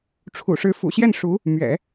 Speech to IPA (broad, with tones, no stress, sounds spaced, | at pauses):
ʈ͡ʂʰ ṵ˨˩ ʂ ɻ̩˧˥ f ṵ˨˩ ɕ j ɛ˥˩ n ʂ u˧˥ | m ɥ ɛ̰˨˩˦